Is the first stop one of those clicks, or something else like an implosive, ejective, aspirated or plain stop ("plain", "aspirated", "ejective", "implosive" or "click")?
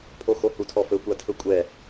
aspirated